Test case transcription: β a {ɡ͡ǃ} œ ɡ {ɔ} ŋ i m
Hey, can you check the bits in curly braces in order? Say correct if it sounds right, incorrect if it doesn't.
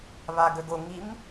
incorrect, incorrect

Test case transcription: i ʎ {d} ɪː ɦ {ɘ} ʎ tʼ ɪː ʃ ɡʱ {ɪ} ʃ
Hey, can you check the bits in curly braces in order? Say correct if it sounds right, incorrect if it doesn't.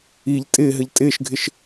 incorrect, correct, correct

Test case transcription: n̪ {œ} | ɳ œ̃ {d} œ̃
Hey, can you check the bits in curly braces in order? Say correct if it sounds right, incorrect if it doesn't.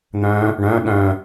incorrect, incorrect

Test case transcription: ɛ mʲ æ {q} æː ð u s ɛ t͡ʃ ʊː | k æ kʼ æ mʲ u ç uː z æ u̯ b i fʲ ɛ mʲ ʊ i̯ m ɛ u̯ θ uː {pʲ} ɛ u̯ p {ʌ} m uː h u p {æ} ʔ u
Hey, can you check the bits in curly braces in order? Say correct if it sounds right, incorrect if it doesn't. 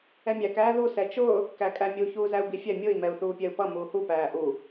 incorrect, correct, correct, incorrect

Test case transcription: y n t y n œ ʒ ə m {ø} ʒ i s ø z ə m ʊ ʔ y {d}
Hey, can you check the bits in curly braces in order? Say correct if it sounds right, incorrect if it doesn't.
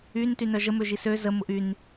correct, incorrect

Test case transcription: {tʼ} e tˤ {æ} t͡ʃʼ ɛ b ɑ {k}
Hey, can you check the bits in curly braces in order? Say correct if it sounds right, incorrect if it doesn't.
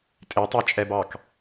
correct, correct, correct

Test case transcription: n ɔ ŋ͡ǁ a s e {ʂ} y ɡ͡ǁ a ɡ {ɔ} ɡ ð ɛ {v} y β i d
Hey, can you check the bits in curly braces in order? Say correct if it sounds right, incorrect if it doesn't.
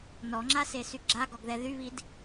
incorrect, correct, incorrect

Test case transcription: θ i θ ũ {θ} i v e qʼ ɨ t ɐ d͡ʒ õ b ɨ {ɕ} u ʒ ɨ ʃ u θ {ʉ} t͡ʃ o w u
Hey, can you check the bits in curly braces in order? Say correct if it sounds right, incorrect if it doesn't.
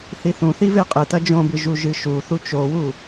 correct, incorrect, incorrect

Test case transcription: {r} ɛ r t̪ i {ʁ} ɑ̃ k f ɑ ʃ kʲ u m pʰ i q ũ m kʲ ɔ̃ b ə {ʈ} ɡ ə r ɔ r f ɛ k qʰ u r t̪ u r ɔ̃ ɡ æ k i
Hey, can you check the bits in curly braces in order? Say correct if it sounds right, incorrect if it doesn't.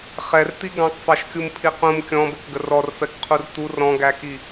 incorrect, incorrect, incorrect

